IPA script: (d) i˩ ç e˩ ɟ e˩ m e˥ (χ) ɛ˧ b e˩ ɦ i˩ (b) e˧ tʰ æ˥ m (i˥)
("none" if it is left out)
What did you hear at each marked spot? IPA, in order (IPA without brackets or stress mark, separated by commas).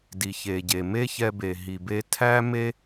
d, ç, b, e˥